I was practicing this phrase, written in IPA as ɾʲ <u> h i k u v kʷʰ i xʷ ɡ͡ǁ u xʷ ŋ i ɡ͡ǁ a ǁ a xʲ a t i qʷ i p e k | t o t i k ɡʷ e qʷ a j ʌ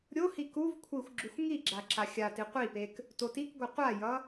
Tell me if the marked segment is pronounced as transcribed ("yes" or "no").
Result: no